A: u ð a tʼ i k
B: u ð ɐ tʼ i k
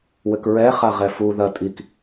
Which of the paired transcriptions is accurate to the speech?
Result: B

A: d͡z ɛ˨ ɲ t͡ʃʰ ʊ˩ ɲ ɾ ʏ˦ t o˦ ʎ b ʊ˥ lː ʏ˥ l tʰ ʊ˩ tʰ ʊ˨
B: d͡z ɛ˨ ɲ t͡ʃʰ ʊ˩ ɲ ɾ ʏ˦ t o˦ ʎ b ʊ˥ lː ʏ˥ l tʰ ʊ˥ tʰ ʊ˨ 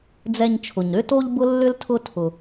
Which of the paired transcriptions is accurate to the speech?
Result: B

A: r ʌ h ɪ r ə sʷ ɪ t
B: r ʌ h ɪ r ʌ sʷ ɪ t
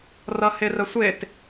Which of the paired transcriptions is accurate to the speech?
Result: A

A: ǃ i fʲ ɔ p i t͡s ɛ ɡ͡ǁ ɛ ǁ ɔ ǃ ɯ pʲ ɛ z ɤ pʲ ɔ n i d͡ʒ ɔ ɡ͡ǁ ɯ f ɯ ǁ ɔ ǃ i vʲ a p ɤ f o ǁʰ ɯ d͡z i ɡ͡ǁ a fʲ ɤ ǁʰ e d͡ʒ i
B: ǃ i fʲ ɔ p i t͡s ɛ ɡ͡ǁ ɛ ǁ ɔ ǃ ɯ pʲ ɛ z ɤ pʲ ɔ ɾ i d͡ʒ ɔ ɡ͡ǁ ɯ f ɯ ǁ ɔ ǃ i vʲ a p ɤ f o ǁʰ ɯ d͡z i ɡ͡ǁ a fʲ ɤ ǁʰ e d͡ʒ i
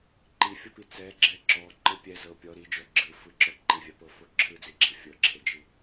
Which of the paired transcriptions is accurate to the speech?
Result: B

